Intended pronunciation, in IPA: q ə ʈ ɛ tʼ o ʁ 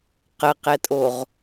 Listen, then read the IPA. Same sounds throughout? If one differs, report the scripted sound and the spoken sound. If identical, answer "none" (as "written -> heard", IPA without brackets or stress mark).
ʈ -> q